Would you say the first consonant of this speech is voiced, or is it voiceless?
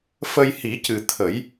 voiceless